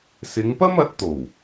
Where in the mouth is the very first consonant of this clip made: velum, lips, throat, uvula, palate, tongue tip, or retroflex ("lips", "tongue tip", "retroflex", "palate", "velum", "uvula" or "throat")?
tongue tip